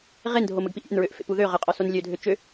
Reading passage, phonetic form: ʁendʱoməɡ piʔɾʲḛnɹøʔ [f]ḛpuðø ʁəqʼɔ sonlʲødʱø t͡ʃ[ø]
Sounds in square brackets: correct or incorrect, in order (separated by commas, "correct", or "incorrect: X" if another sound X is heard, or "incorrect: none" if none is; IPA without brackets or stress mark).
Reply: correct, correct